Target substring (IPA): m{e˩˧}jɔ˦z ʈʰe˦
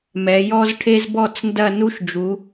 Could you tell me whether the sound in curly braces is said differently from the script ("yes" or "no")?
yes